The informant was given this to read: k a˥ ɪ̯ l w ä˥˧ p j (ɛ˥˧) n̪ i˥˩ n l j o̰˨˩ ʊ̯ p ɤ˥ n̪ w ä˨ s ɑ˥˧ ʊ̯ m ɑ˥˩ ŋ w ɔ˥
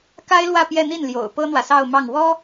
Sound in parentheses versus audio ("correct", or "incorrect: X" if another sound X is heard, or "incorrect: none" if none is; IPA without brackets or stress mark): correct